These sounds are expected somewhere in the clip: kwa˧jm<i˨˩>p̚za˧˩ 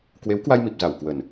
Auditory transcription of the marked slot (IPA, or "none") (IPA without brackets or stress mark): i˨˩